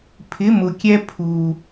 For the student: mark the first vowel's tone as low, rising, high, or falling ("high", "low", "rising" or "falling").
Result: rising